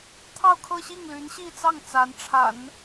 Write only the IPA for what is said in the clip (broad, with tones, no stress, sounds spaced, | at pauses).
t̪ʰ ɑ˥˧ ʊ̯ kʰ ɤ˥˧ ɕ i˥˩ ŋ l y˧˥ n ɕ i˥˧ t͡s ɑ˥˩ ŋ t͡s a˧˥ n ʈ͡ʂʰ a̰˨˩˦ n